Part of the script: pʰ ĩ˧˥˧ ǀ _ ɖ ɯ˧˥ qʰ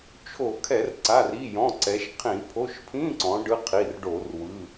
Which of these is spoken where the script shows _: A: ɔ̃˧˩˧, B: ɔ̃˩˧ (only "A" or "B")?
B